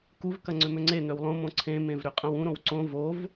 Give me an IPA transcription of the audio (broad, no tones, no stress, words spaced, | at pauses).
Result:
kuvkɐ ŋ͡ǀʏmʏŋ͡ǀen̪øw lˠõmõ ǀʰẽmẽv ɾʏqʼɐ̃wũɾõw ǀõ vov